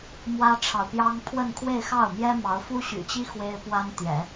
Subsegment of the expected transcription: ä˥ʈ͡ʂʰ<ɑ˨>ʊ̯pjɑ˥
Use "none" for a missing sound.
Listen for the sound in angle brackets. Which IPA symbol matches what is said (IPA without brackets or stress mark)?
ɑ˨